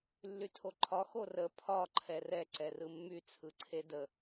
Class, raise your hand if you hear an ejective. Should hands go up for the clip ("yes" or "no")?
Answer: no